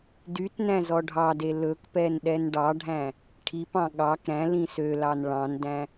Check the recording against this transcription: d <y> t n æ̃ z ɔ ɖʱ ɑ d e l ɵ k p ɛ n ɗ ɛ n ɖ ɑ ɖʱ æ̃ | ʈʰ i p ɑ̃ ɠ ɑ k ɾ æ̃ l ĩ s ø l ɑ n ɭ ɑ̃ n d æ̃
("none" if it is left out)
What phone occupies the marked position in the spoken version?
y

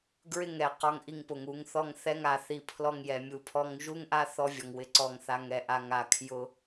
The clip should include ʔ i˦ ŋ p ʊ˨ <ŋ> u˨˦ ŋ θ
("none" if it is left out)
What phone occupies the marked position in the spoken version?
ŋ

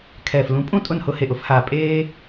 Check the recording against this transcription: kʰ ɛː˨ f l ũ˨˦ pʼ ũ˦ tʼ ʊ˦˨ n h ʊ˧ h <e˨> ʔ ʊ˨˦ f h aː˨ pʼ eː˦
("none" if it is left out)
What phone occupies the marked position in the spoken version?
e˨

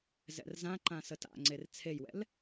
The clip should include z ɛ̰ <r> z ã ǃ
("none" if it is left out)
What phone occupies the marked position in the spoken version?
r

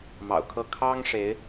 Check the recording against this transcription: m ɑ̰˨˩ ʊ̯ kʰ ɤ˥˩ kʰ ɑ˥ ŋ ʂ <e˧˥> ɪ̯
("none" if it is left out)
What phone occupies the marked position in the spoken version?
e˧˥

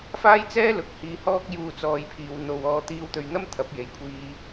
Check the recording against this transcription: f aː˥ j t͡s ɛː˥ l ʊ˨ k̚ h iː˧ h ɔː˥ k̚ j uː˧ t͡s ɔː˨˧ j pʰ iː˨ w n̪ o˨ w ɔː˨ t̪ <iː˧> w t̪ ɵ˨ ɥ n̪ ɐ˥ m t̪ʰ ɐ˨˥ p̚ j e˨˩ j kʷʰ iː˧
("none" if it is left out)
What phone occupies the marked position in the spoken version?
iː˧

